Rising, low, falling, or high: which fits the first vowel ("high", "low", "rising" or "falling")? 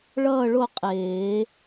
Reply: falling